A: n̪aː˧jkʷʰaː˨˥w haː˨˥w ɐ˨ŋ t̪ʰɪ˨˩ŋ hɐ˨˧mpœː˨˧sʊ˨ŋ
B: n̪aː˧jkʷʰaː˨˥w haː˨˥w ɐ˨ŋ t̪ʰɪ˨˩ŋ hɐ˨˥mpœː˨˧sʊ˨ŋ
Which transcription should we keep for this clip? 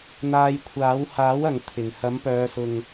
B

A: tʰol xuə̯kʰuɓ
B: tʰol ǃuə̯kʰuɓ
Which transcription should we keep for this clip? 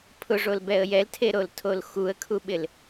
A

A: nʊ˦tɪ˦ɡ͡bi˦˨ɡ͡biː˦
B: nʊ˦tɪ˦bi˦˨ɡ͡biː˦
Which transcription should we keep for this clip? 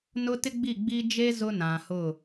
A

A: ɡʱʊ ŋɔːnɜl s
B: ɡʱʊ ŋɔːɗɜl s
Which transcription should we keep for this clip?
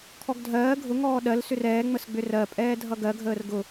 B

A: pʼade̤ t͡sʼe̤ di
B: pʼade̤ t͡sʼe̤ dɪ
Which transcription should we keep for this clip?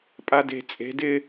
B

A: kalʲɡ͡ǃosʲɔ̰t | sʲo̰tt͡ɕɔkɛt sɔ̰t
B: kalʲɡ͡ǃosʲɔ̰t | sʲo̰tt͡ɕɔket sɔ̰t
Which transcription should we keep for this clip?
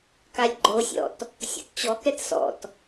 A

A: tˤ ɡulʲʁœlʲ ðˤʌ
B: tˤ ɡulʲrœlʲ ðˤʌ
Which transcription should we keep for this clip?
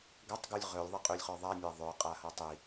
A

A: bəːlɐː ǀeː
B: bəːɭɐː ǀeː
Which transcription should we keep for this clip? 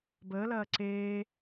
A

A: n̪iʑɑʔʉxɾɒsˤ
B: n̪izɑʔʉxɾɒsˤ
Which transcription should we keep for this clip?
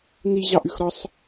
A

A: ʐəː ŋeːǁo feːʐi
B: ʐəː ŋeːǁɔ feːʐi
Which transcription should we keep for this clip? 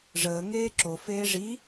A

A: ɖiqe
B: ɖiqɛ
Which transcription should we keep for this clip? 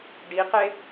A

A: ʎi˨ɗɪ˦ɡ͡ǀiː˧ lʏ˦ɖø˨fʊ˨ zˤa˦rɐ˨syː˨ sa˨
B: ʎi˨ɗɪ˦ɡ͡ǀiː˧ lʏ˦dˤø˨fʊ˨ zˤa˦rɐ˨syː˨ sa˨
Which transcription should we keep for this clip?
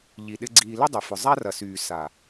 B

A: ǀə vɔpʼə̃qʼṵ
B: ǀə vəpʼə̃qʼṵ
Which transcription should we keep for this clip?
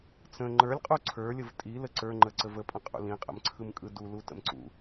B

